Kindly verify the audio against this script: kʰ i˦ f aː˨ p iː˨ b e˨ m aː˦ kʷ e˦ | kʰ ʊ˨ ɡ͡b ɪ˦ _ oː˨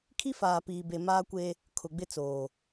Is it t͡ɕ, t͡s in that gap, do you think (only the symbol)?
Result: t͡s